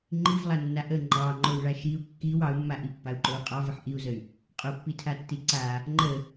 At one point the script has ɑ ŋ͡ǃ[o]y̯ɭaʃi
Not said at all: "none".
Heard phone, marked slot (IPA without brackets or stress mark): o